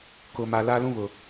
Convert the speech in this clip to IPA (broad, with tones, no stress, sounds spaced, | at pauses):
k ʊ˨ m a˨ l a˦ l ũ˦ β ʊ˨